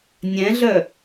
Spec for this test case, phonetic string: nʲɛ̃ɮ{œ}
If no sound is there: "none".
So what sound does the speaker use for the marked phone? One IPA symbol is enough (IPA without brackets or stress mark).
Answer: œ